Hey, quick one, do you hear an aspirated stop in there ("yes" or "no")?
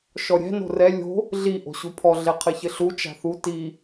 yes